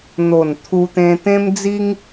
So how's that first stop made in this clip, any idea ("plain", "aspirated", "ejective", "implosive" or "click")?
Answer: aspirated